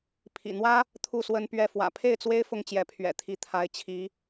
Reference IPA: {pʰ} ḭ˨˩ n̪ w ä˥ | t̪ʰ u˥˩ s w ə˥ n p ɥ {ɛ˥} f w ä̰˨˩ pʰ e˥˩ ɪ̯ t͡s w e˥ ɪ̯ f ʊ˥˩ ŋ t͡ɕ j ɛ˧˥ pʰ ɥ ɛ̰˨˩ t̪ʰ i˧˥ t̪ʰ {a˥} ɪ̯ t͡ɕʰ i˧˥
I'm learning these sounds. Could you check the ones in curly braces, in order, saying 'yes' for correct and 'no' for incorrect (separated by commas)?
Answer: yes, no, no